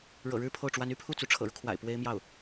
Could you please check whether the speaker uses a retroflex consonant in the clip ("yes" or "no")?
yes